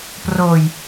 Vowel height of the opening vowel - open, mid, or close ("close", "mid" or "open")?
mid